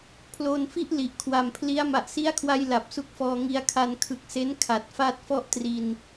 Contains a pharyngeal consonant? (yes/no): no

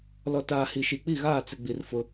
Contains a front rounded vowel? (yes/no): no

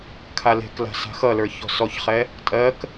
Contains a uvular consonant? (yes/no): yes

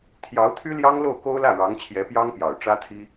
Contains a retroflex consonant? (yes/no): yes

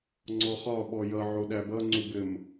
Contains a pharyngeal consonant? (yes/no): yes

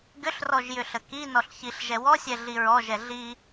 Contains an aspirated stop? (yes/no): no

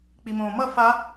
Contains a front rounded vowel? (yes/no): no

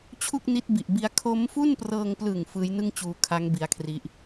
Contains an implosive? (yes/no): no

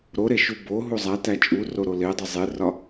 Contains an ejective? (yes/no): yes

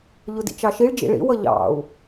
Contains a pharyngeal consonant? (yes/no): no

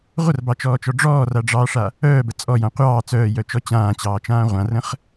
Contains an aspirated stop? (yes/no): no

